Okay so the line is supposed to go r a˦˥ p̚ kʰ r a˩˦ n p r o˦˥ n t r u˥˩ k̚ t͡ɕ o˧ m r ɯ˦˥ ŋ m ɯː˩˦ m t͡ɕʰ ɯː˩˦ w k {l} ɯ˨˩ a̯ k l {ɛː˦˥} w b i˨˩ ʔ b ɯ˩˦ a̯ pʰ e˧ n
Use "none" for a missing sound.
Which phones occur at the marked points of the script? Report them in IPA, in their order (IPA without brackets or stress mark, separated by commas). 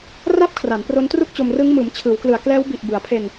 l, ɛː˦˥